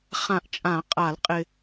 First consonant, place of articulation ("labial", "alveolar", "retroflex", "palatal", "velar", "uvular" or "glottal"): uvular